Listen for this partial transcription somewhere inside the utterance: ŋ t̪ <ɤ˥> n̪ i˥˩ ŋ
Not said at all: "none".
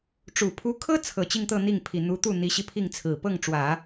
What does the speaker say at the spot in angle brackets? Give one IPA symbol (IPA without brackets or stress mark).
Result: ɤ˥˧